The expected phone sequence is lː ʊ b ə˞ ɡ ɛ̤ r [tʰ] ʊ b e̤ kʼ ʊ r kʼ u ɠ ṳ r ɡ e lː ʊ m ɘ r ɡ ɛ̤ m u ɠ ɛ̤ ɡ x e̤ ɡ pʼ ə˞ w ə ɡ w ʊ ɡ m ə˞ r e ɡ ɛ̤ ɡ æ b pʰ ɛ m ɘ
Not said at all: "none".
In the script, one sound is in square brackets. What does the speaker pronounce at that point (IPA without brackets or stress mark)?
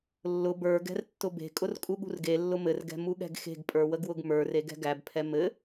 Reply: tː